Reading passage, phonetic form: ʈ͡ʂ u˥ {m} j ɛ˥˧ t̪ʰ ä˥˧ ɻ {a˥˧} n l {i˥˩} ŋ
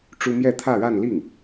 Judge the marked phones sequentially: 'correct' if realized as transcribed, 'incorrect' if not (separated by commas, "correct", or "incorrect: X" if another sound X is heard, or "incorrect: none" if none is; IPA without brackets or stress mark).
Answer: correct, correct, correct